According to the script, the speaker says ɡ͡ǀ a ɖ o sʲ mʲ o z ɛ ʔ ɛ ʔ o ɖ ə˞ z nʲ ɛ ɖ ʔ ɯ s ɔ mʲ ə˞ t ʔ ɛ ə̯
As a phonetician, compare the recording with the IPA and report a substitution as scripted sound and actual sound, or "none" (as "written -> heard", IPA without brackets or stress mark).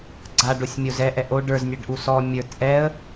ɯ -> u